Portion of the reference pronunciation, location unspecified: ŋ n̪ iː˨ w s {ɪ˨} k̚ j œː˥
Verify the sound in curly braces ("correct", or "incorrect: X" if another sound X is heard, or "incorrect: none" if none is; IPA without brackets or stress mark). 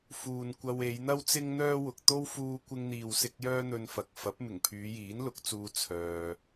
incorrect: ɪ˧